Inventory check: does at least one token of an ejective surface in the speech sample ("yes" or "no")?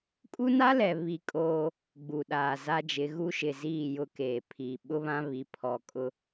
yes